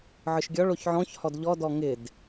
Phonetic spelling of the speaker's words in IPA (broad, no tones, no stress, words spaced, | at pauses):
ʕɯʃɡʲɔɭ oçʕɔ̃ç hɔdʎɔdɔ ŋɪd